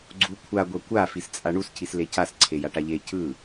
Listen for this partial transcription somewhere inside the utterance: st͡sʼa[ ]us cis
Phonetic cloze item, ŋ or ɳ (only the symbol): ɳ